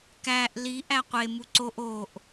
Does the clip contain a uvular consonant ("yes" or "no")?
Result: yes